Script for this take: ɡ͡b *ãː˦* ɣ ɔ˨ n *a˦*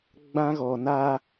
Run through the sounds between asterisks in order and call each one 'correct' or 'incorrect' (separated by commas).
incorrect, correct